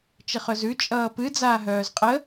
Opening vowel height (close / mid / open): mid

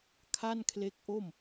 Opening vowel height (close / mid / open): open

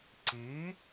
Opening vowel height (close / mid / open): close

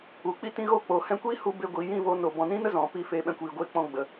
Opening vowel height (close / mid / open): close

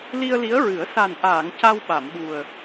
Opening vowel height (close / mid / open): close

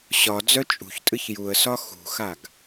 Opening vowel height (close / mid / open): open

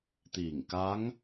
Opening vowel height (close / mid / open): close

